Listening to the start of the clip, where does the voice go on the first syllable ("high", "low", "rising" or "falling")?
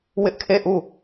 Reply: high